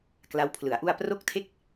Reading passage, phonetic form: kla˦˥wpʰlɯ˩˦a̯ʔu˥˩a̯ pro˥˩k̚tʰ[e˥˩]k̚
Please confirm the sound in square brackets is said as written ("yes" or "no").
yes